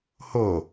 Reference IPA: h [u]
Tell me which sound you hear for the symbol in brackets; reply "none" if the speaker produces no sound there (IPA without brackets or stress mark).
o